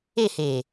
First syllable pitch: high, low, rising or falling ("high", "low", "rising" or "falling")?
falling